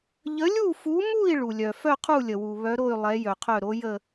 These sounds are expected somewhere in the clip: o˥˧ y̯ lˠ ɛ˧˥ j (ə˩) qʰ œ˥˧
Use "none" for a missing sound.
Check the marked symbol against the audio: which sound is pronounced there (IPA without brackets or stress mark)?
œ˩